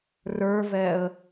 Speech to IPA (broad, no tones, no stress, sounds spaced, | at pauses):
r ə˞ v ɛ ə̯